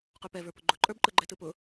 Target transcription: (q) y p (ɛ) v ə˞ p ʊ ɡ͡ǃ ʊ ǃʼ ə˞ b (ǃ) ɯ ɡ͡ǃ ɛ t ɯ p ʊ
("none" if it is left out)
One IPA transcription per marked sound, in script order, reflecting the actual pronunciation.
q, ɛ, ǃ

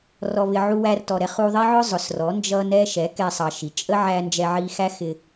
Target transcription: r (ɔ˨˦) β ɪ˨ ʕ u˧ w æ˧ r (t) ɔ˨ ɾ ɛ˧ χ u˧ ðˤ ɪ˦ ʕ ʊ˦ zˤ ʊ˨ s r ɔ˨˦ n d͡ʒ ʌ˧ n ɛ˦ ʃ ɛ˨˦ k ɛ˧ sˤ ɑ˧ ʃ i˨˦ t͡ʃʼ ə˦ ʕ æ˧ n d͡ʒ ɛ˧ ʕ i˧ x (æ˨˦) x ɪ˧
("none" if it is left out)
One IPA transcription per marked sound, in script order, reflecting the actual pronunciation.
ɔ˨, t, æ˦

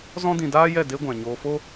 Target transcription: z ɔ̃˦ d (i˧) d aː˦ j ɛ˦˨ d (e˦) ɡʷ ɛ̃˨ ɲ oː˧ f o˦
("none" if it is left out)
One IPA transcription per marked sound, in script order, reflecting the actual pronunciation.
ĩ˧, e˦

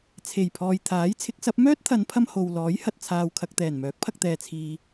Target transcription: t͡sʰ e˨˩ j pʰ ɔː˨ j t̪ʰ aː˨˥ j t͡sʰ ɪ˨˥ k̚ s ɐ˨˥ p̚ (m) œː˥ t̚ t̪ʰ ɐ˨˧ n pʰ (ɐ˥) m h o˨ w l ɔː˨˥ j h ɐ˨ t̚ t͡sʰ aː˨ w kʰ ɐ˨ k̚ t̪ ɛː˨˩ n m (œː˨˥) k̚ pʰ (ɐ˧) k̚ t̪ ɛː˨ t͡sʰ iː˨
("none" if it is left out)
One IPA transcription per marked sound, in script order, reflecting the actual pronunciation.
m, ɐ˧, œː˨˥, ɐ˧

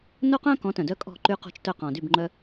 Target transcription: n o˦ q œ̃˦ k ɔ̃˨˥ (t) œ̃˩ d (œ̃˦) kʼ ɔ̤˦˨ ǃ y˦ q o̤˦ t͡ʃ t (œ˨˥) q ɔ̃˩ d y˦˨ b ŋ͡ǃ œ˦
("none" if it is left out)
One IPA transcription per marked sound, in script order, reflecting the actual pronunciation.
t, œ˦, œ˦˨

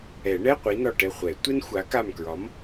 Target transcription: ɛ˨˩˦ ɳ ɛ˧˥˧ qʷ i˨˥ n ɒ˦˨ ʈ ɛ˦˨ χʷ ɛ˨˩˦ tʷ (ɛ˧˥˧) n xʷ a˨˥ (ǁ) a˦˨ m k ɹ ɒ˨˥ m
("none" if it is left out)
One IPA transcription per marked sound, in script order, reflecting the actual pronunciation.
ɛ˥, k

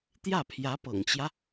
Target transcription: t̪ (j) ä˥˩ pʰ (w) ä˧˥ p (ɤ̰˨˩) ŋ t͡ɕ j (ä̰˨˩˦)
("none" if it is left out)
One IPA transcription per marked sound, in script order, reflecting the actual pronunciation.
j, j, ɤ̰˨˩, ä˦

